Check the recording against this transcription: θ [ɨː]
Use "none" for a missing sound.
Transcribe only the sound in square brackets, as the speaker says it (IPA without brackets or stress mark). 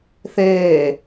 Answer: eː